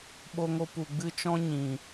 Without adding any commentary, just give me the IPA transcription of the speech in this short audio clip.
ɓ o˧ ŋ o˧ p u˨ ɡ͡b ɨ˧ t͡ʃ ɔ̃˧ ɲ ĩ˨

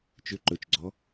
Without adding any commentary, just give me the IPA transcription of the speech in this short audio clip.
t͡ʃ ʏ ǃ ɵ t͡ʃ ɡ͡ǀ ɔ

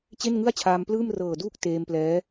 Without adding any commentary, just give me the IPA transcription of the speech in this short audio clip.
t͡ɕ e˥˩ n ŋ ɯ˥˩ a̯ t͡ɕʰ aː˧ m p l ɯː˥˩ m r ɤː˨˩ d uː˦˥ k̚ t eː˧ m p l ɛː˦˥

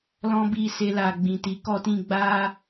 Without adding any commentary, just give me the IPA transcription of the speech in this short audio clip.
l ɔ̃˦ b i˦˨ s e˧ l a˨ ɡ͡b ĩ˨ t i˨˦ k ɔ˧ t ĩ˧ ɡ͡b a˦

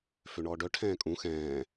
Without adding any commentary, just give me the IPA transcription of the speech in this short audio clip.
f ø ɳ ɔː ɖ œ ʈʰ ɛ̃ː kʼ ũ x ɛ̃ː

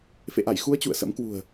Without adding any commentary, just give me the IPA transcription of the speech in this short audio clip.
f ḛ˧˨ ʔ a˧˩ j x u˨˦ ə̯ t͡ɕ ṵ˧˨ ə̯ s ə̰˧˥ m k w ṳ˨˩ ə̯

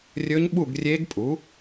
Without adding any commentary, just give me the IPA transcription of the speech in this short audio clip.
rʲ ɵ˦˥ ɲ ɓ u˥˧ ɡ rʲ e˦˥ ɡ pʼ u˨˥

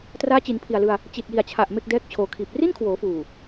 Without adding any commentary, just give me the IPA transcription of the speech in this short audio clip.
t r aː˦˥ t͡ɕ i˩˦ n pʰ i˨˩ a̯ l ɯ˧ a̯ | t͡ɕ i˨˩ t̚ j i˨˩ a̯ t͡ɕʰ a˨˩ ʔ m e˥˩ k̚ d ɛː˥˩ k̚ t͡ɕʰ oː˩˦ kʰ iː˨˩ p̚ r i˥˩ n kʰ w oː˩˦ f uː˨˩

